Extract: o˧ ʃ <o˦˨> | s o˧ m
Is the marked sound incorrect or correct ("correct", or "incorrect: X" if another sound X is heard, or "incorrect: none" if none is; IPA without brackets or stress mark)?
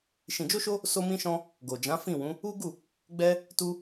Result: incorrect: o˧